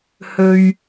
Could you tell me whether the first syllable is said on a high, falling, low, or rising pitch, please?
low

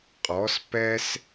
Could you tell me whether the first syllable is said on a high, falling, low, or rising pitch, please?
rising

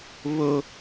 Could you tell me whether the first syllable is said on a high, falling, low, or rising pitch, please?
high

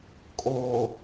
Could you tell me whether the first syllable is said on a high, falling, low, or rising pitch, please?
low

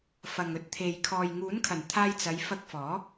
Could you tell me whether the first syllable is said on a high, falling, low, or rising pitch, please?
low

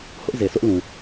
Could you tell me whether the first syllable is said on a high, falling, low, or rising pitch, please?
high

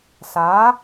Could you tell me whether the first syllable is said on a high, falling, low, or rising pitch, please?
rising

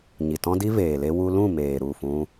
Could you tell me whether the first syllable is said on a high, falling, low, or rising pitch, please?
low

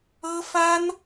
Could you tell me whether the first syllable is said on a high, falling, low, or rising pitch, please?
high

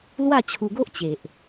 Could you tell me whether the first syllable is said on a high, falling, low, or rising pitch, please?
falling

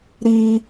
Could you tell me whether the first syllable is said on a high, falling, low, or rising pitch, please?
high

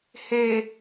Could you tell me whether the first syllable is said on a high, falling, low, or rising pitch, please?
low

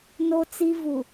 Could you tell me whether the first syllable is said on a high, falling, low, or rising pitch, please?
high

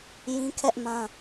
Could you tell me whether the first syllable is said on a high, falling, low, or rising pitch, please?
high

